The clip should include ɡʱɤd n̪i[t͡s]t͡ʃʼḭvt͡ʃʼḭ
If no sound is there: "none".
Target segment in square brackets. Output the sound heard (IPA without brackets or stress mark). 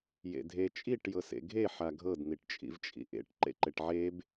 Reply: ʈ